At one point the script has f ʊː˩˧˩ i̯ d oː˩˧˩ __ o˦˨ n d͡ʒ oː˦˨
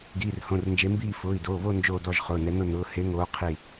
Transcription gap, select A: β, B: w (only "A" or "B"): A